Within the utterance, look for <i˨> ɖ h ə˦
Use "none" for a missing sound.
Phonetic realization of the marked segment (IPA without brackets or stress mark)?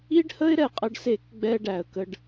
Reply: i˦